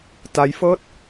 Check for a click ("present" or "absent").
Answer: absent